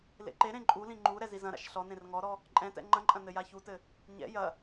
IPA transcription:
lḛǃeɾẽ ǃʼulĩ ŋ͡ǃu ɾɛzizɐ̃ɾa̰ʃ ɬɔnẽr ŋɔɾɔ | ǃʼɛ̃tɛ̰ ŋ͡ǃɐ̃ǃʼɐ̃ nɘjaçutɘ | ɲɛ̰ jɐ

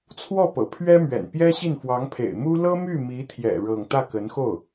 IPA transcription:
t͡sʰwɔ˥˩pɤ̰˨˩pʰɥɛ˥mɥɛ̰˨˩n pjɛ˥ɕi˥˩n fwɑ˧˥ŋpʰḛ˨˩ɪ̯mu˥ lɤ˥my˥˩mi˧˥t̪ʰjɛ̰˨˩ ɻɤ˥˧ŋ t̪ä˥˩kə˧˥nxo˥˩ʊ̯

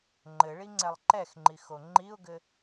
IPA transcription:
ŋ͡ǃɘɭiŋ͡ǀɛlˠ ǃɛxŋ͡ǃixo ŋ͡ǃiʊ̯ɡɘ

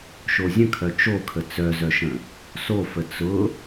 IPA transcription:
ʃozʲə̃kʰœ t͡ʃokʰə t͡sœzœʃə̃ | sofə t͡sʊ

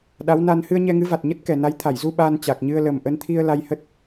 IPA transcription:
ɗa˨˦wna˧n hɨ˧ə̯ɲɛ˧ŋɨ˨˦va˨˩t̚ ɲə˦˥t̚kɛ˨˩na˨˦j t̪ʰa˧˩jzu˧ ɓaː˧nt͡ɕa˨˩k̚ ɲɨ˧ə̯lə˨˩m ʔə˨˦nt̪ʰi˧ə̯ la˧jhə˦˥t̚

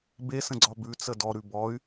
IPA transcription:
besə̃ɡ͡ǀɒ bʉt͡sə dɔɾʉ bɔy̯

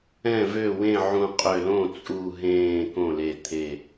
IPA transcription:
ɛ̃˥˩vø˥˩wẽ˥˩ ʕũ˧˩qʼø˧˩lõ˥˩ t͡sʼu˧˩ɦẽː˧˩ kõ˥˩le˧˩ t̪ʰe˧˩

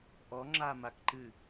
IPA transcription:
ʔɔŋ͡ǁa makǃɨ

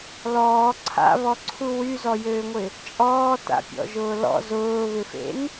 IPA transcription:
lɔː ǀʰa̰βɔǀʰu wyzɔjøːŋʷɪ | t͡ʃʼɔːta̰pʲɔ̰ʒʊː lɔ̰ zʊːβɪfḛn

